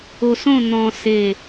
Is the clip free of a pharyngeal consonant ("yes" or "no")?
yes